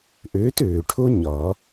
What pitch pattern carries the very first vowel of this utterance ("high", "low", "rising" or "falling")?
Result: rising